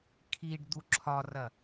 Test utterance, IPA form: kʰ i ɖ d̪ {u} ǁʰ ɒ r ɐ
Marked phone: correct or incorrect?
correct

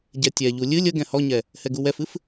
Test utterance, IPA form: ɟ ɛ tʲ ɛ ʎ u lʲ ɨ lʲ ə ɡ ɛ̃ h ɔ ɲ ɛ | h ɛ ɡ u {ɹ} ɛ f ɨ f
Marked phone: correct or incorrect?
incorrect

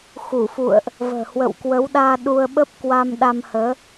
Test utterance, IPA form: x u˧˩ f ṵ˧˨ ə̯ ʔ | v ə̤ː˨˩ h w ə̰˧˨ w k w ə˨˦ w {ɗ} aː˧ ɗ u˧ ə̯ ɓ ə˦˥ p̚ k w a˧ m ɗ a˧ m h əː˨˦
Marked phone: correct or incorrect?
correct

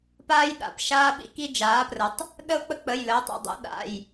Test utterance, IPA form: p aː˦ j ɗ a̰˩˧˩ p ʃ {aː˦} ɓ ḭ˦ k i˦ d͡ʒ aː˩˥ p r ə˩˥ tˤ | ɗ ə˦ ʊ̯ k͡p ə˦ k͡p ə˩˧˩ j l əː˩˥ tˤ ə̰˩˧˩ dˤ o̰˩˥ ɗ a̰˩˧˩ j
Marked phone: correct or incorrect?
correct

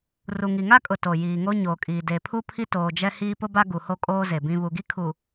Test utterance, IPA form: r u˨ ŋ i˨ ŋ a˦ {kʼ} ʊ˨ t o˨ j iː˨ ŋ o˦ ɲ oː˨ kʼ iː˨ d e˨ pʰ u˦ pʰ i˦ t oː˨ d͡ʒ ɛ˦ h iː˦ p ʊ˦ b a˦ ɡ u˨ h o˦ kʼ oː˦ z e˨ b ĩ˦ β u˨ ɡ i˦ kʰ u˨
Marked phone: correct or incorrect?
correct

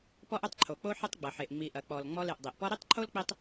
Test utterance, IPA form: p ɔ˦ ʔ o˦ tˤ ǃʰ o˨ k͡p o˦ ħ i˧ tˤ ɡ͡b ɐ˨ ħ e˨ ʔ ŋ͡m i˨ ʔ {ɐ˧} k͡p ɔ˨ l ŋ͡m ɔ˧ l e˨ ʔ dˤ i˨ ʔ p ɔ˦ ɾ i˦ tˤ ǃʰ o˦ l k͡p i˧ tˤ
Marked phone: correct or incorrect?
incorrect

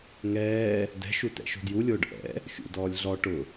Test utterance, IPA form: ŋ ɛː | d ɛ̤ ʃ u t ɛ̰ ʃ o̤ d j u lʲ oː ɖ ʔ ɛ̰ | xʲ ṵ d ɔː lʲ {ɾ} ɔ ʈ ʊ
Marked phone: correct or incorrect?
incorrect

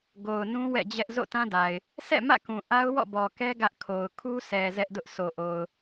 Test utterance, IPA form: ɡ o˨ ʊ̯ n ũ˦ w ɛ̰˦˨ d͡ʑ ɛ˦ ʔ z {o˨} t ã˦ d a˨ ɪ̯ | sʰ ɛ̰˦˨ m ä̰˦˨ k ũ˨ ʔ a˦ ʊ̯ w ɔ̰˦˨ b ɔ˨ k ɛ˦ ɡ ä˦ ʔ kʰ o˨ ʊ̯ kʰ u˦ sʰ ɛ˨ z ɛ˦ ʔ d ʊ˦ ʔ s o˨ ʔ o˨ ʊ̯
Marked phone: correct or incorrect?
incorrect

